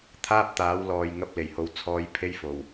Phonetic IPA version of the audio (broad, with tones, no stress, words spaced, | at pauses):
t̪ʰaː˥p̚t̪aː˨˥wlɔː˨jŋɐ˧p̚ le˨˩jho˨wt͡sʰɔː˨˧j pʰe˥jfo˨˩w